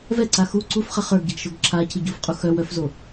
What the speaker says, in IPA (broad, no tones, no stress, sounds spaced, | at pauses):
v ɛ ǀ a x u ǀ u f χ ɐ χ ə˞ ɡ ɟ ɐ ɡ ʃ o ɡ ǁʰ a cʰ i ɟ u f qʼ u x œ w œ f z o